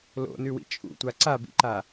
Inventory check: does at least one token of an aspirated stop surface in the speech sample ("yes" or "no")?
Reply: no